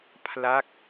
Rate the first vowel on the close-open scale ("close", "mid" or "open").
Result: open